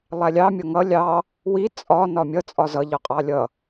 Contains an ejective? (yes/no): yes